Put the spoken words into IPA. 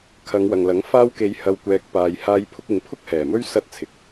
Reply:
kʰ ɐ˨˧ ŋ w ɐ˨ ŋ l ɐ˨˥ ŋ f aː˧ w k e˨˧ j h ɐ˨ w kʷ ɛː˨ k̚ p aː˨ j h aː˧ j pʰ ʊ˧ k̚ ɪ˨˧ ŋ pʰ ʊ˥ k̚ h ɛː˨˩ m ɵ˥ ɥ s ɐ˧ t̚ t͡sʰ ɪ˨ k̚

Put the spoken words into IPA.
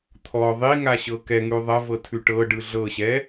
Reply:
t̪ʰ ɔ ðˤ i ŋ a ɕ ɤ k ɛ ŋ ʉ ðˤ ɐ v ɤ tʰ ʉ ʈ ɤ ɖ ɯ ɮ ɤ ɕ ɛ

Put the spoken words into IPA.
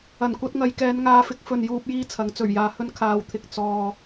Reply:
ɐ˨˩ n kʷ ɐ˧ t̚ ŋ ɐ˨ j k ɛː˨˧ n ŋ aː˧ f ɪ˥ k̚ f ɵ˨ n j uː˧ p̚ j iː˥ t͡sʰ ɐ˨˥ ŋ t͡s ɵ˨˩ ɥ j aː˨ h ɵ˧ n kʰ aː˨ w t̪ʰ ɪ˨ k̚ t͡s ɔː˧

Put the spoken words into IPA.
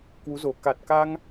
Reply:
k w u˨˦ z o˨˩ k a˨˩ t̚ k a˧ ŋ

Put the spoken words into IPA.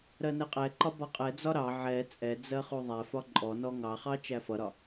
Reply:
ɾ ɜ n ɛ qʼ ɛ ǃ ɒ b ɒ qʼ ɛ d͡z ɒ ɾ ɑ ʕ ɛ t͡sʼ ɛ d͡z ɜ χ u ðˤ æ f ɒ ǃʼ ɔ n ɔ ŋ ɑ χ ɑ t͡ʃ æ f ʌ ɾ ɒ

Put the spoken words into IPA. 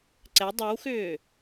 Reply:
ǀ ɛ dˤ œ w x ʏː

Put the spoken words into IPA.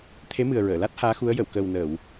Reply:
t̪ʰ e˧˥ m ɨ˨˩ ə̯ ɹ əː˨˩˨ l a˦˥ t̚ h aː˧˥ x u˧˥ ə̯ j ə˨˩˨ w k əː˨˩ w n əː˨˩˨ w

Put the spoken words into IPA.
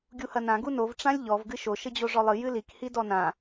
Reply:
ɡʲ u h ɐ n ã ɡ u n o v ʈ͡ʂ ã lʲ ʎ ɔ v ɡ ɨ ʃ o ʃ ɘ d͡ʑ o ʐ ɔ lˠ ɨ j ɨ l i k h i d ɔ n ã

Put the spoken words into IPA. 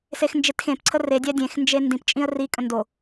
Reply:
s e x n d͡ʒ e t x ẽ p ǀʰ ə r e dʲ æ dʲ ẽ x n d͡ʒ e n d ĩ p t͡ʃʼ ĩ ə̯ r i kʼ ə̃ n d o

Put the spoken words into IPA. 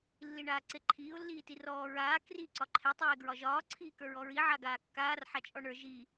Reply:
lː i ɳ aː ǀ e ǃʰ iː ʊ̯ lː iː t i r ɔː ɹ aː k r i ǀ ɒ ǃʰ e tˤ eː ɡ ɹ ɒ ʒ ɒː ǀʰ iː k ə˞ ɹ ɔ ɹ i ʕ a ɡ aː kː aː r ħ a t͡ʃʼ ɔ ɳ ə˞ ʒ i

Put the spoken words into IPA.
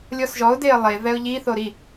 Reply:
lʲ ɔ s ʒ ɔ ʊ̯ d e ə̯ lˠ e v ɛ ʊ̯ ʎ i θ o ɾ i

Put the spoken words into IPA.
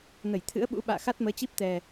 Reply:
n ə˧˩ j t̪ʰ ɨ̰˧˥ ə̯ ɓ ṵ˧˥ ɓ a̰ː˧˨ x a˦˥ t̚ m əː˨˦ t͡ɕ i˦˥ p̚ t̪ ɛ˨˩

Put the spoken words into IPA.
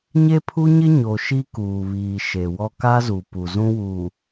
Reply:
ɲ e˦ pʰ u˦ ɲ ɪ˦ ɲ o˨ ʃ i˦ k uː˨ β iː˨ ʃ e˨ w ɔ˦ k a˦ z u˨ p u˨ z ũ˦ w uː˨

